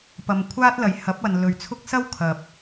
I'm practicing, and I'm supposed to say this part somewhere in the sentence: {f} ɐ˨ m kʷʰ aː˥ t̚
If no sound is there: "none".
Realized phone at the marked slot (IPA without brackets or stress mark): p